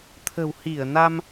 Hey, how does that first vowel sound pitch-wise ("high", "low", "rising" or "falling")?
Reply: low